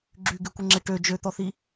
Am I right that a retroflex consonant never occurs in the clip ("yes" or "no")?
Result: no